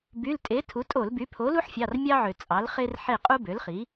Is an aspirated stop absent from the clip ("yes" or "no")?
no